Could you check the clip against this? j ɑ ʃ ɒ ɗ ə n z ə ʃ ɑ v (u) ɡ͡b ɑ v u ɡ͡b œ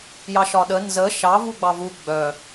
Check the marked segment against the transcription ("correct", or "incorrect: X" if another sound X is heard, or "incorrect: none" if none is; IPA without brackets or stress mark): correct